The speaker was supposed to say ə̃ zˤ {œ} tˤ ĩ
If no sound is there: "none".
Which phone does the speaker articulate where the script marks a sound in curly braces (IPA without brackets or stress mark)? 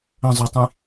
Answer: œ